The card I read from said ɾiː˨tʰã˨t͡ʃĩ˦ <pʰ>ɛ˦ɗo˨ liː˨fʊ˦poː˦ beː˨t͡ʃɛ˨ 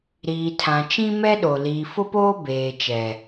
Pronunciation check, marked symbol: incorrect: m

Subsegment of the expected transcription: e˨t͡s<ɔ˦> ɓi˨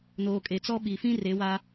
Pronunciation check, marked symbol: correct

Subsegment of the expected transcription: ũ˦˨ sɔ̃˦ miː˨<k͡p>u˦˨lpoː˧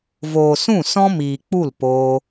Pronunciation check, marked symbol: correct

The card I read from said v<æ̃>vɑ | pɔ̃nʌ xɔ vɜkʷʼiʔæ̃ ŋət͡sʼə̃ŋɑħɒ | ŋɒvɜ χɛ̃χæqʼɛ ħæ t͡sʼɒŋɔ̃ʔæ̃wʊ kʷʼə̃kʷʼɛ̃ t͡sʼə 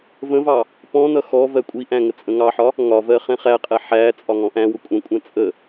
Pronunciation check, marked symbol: incorrect: ə̃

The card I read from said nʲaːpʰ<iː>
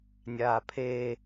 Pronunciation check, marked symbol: incorrect: eː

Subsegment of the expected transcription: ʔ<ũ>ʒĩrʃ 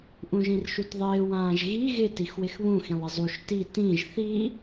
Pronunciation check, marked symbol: correct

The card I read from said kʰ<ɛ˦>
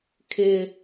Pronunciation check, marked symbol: incorrect: ɪ˦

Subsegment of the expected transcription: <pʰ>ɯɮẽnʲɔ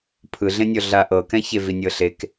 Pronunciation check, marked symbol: correct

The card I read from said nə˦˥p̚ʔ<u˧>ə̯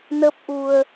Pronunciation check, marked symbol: correct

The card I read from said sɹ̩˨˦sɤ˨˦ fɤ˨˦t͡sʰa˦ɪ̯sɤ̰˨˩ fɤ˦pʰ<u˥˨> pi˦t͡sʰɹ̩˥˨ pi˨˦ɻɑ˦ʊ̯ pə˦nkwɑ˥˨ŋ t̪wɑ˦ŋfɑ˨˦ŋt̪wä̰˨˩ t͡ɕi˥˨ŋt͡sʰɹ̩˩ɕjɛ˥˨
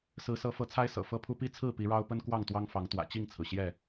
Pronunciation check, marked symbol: incorrect: u˦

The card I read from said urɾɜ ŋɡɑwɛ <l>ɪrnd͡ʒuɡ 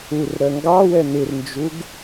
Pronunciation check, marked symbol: incorrect: n̪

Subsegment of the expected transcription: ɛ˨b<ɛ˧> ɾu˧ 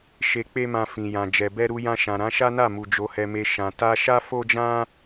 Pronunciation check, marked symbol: correct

